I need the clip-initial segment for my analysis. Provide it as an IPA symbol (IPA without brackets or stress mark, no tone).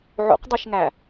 ʕ